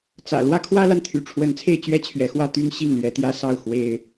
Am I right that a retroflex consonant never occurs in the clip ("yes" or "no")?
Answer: no